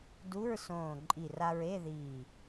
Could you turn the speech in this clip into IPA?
du˧˥˧ɹsõː˧˩ ǃʼi˧˩ra˧ɹe˧˥˧ ðiː˧˩

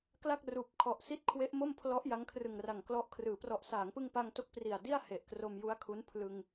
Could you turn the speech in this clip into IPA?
kla˥˩k̚ruː˨˩p̚kʰɔ˨˩ʔ si˦˥t̚kʰwe˦˥ʔ mo˥˩mpʰlɔ˦˥ʔ ja˦˥ŋkʰrɯ˨˩ŋra˨˩ŋklɔ˦˥ʔ kʰrɯː˩˦prɔ˨˩ʔ saː˩˦ŋpɯ˧ŋ pa˧ŋto˦˥k̚ pri˨˩a̯di˥˩a̯ he˨˩ʔkro˧mju˦˥a̯kʰu˦˥n pʰlɯ˧ŋ

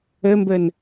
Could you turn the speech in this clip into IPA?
ɘmbɘn

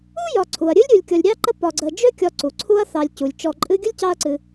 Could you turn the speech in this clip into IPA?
u˥ jɒ˨ǀʰu˩ɐ̯ ɾʲɨ˥lʲɾʲu˨lʲkʲɒ˨lʲ ɾʲɑ˦ǃə˦ pɒ˨ɡ͡ǀə˨ d͡ʒø˥kʲɒ˨ ǀu˩ǀʰu˦ɐ̯θɑ˨lʲ cu˩lʲt͡ʃɔ˨ǃʼɨ˦ ɡʲə˥lʲ cɑ˦ɐ̯ǀɨ˨

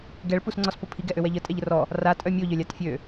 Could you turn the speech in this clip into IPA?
ɡɛɭ pusŋ͡ǀɔspopʰi ɡɛʔøwɛʎə tʼɛʎərɔ | ra tʼœmʲo ʎœlʲatfʲø

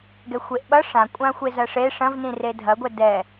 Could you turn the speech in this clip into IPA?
ɡɛxʷeʔɓʌ ʂãkʷʼã xʷezɐʂe ʂɐ̃vnĩre dʱɐɡʷɛ dɛ

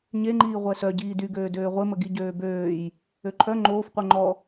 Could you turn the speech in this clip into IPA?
ɲeŋ͡ǃiː ʁʷɛsœ ɟiːdyɡøː døːʁʷemə ɡiɟøːbøːj | øǃʰœ ŋ͡ǃoːfqʷœ ŋ͡ǃɔ

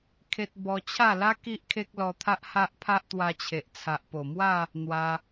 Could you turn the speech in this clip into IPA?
kʰe˦t̚ bɔ˧t͡ɕʰa˥˧la˦ ki˦ʔkʰe˦k̚lɔ˧t̪ʰa˦ʔ ha˦ʔpʰa˦ʔt̪wa˧t͡ɕʰe˨ʔ t͡sʰa˨ʔpo˨˩mwa˥˧ | n̪wa˧

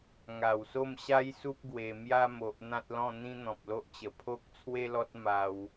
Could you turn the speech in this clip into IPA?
ŋa˨˩wso˥˧mɕa˦jsu˦p̚ ɡwe˧ mja˦ mo˨ʔ n̪ã˦t̚lɔ̃˥˧n̪ĩ˦ n̪ɔ̃˨p̚lo˦ʔt͡ɕə˨˩ pʰo˦k̚t͡sʰwe˦lɔ˦t̚ ma˧w

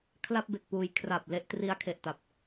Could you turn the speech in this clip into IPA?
kʰla˥˩p̚be˨˩k̚puː˨˩j kʰra˨˩p̚ le˥˩ʔ tri˧a̯kʰe˨˩ʔ ta˨˩p̚

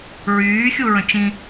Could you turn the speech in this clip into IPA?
ɹyːxʲuɹə̃ t͡ʃĩ

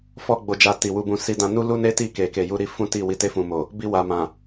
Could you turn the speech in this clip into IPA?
fɔ˦ɡ͡bo˧d͡ʒa˧ ti˨wu˧bũ˧ si˧dã˧nu˦lu˦ ne˦ ti˦˨ke˨ke˨ju˧ ɾi˦ fũ˦ti˦˨ wi˨˦te˦˨fũ˨mo˨ | bi˧wa˨mã˨

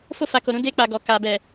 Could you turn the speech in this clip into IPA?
fo˧fa˨ko˨ ɾũ˨˦de˧k͡pa˨ ɡɔ˨ka˨bɛ˨

